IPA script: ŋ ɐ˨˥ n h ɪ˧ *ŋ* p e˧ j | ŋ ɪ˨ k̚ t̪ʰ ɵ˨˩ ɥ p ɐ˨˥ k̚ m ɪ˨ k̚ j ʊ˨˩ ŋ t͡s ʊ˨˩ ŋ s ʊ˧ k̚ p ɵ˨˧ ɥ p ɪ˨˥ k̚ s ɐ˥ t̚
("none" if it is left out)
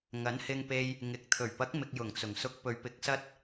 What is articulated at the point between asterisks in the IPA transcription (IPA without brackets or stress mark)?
ŋ